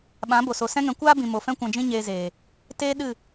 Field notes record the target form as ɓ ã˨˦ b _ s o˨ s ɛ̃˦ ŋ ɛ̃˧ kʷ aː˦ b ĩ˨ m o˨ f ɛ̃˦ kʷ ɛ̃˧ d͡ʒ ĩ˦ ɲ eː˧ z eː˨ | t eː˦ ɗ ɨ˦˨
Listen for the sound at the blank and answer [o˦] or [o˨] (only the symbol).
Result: o˨